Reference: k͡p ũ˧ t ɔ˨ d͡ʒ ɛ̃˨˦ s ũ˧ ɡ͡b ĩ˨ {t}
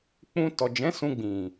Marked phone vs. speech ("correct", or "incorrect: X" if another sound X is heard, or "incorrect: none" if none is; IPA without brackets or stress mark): incorrect: none